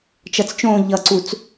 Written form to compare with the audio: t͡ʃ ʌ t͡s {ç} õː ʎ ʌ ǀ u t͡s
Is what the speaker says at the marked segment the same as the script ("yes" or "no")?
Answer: no